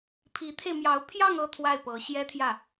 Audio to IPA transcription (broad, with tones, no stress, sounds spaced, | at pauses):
pʰ i˧˥ t̪ʰ e˧ ɪ̯ m j ɑ˧˥ ʊ̯ pʰ j ɑ˥˧ ŋ ɤ˥˧ t̪ʰ w a˥˩ ɪ̯ p ɤ˧˥ ɕ j ɛ˥ t̪ʰ j ä˥˩